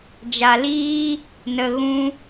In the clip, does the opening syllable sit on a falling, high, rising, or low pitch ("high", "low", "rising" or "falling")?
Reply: low